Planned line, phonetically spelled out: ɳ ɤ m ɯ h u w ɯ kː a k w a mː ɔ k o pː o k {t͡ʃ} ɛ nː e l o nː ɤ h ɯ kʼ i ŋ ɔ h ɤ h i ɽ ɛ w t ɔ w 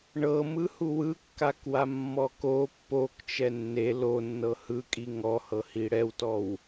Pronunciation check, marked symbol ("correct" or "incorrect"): correct